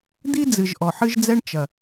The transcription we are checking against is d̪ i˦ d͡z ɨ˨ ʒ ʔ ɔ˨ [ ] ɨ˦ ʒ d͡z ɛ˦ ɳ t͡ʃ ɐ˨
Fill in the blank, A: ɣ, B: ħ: B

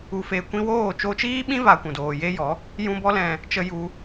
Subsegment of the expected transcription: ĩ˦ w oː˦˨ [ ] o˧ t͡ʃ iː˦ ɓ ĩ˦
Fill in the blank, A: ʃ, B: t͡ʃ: B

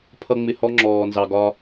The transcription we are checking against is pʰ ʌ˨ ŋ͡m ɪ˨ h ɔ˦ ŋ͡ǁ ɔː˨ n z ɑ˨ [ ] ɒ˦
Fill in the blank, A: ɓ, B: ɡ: B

